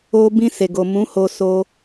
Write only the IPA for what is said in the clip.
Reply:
o˧ b ĩ˧ s e˨ ɡ o˨ m ũ˨˦ h o˧ s o˧

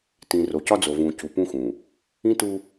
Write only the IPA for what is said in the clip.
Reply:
t ĩ˨ r o˨ c ɒ˦ d͡z o˨ v ũ˨ c u˨ p ũ˦ x ũ˨ | ĩ˦ t u˦

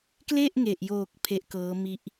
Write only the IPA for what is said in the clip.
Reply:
k l e˥˩ ʔ ŋ e˨˩ ʔ j oː˨˩ k̚ pʰ e˦˥ ʔ k ɤː˦˥ m i˦˥ ʔ

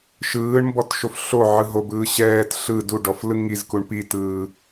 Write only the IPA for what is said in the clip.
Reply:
ʃ ɯː ɳ m b ɔ t ʃ o f ɬ o ʕ ɯ ɦ o b ɯː ɕ ɛː t ɬ ɯ d u ɖ ɔ f l ɯ ŋ i z k u ɳ p i t ɯː

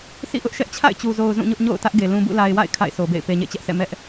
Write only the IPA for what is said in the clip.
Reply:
s ḭ˦˨ ʔ ʊ˦ ʔ ʃ ɛ˦ ʔ t͡ɕʰ a̰˦˨ ɪ̯ t͡ɕ u˨ z o˨ ʊ̯ z ũ˦˨ ɲ ʊ˦ ʔ ɲ o̰˦˨ ʊ̯ t ä˦ ʔ ɡ e˨ l ũ˨ b ṵ˦˨ l a˨ ɪ̯ w a̰˦˨ ɪ̯ kʰ a̰˦˨ ɪ̯ sʰ o˨ b ḛ˦˨ ɪ̯ p e˨ ɲ ḛ˦˨ t͡ɕ ɛ˦ ʔ s ɛ̰˦˨ m ɛ˦ ʔ

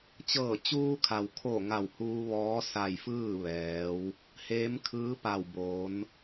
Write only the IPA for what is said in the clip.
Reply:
t͡ɕ ɤː˧˩ t͡ɕ uː˧ kʰ a˩ w kʰ o˧˩ ŋ a˧˩ w h uː˧ ʋ ɔː˧˥ s a˧˩ j f ɯː˥˨ ʋ ɛː˩˧ w | h eː˧˥ m kʰ ɯː˧˥ p a˧˩ w b oː˩˧ n

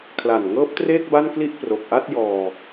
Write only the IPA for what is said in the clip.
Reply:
kʰ l a˨˩ n ŋ ɤː˦˥ p̚ t r eː˥˩ k̚ b a˥˩ n k l i˥˩ ʔ p r o˨˩ k̚ ʔ a˥˩ t̚ j ɔː˧

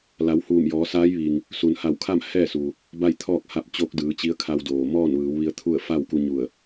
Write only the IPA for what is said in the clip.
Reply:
l a˩˧ w h uː˧˩ m j ɔː˩˧ s aː˧˥ j ʋ i˩ ŋ | s u˩ n h a˧˩ w kʰ a˥˨ m h ɛː˥˨ s uː˩ | b a˥˨ j t̪ʰ ɔː˥˨ k̚ h a˧ p̚ t͡ɕ o˧˥ k̚ d ɯː˩˧ t͡ɕ i˧˥ ə̯ kʰ a˧ w d oː˩ m ɔː˥˨ n ʋ ɯː˩˧ w ʋ i˧ ə̯ t̪ʰ u˥˨ ə̯ f a˥˨ w k u˧ ɲ u˧˩ ə̯

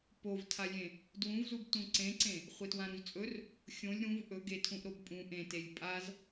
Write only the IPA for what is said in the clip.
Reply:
p o v tʰ a lʲ ẽ | d w ũ v z u b t ũ ǀ ẽ ǀ ẽ | χʷ e t w ã ɾ ũ z t͡sʼ ɵ r | xʲ õ lʲ ɾ ũ v ʔ ɵ ɡ e tʰ ũ ʔ ɾ o b pʼ ũ ʔ ẽ t e lʲ pʼ a z

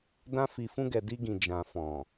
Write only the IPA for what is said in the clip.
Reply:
d ã˧ f i˨ f ũ˧ ɡ ɛ˨ d i˧ ɡ ĩ˨ d͡ʒ ã˨ f ɔ̃˨

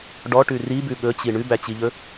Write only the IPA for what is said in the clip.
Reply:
ɖ ɔ ʈ ʉ r i b ʉ ɠ ɵ t͡ɕ i ɳ ʉ b æ t͡ɕ i ʎ ɵ

